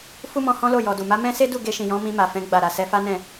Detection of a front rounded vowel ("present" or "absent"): absent